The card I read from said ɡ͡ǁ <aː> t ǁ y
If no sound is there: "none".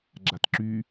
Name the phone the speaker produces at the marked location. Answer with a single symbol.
a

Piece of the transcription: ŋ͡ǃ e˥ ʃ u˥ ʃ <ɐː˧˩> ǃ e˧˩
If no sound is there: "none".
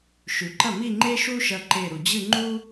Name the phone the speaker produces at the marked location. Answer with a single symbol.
ɐ˧˩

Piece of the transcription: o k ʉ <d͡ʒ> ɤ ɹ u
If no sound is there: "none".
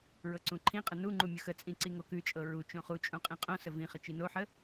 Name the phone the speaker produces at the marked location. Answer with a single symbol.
t͡ʃʼ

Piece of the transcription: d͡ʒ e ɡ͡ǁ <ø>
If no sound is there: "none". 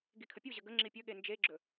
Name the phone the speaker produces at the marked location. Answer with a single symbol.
ɵ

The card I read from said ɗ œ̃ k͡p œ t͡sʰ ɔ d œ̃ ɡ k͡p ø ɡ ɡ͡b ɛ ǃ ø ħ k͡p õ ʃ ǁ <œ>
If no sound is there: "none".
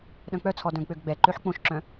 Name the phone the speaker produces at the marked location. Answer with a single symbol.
œ̃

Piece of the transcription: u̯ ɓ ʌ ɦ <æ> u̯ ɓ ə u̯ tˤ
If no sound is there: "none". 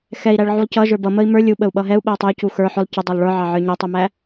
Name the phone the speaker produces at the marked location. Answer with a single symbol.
ɛ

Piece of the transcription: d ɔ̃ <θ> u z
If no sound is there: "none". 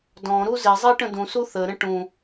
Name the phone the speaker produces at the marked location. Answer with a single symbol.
ɾ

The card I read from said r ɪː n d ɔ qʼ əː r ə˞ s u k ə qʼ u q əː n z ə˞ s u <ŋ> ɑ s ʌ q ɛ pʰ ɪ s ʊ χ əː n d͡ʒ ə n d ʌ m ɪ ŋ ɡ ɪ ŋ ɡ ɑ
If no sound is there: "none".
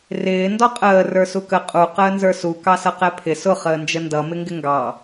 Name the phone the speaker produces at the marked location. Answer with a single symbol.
k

